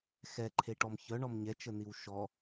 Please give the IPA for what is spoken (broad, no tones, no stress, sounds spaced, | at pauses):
x ɛ ǃʰ e ʈ ɔ m ç œ ɳ ɔ m ɲ ɛ t͡ʃ ə n i w ʃ ɔ